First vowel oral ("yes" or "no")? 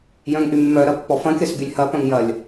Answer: no